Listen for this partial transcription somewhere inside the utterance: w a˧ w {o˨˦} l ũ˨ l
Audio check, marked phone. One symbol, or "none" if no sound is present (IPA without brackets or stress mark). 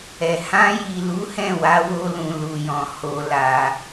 o˧